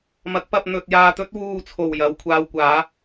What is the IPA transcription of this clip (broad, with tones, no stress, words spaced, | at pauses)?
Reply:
mɐ˨˥k̚pɐ˧p̚ n̪ɵ˧t̚ jaː˧t̪ɵ˥t̚ wuː˧t͡sʰo˨˩wjɐ˨w kʷʰaː˧wkʷaː˨˥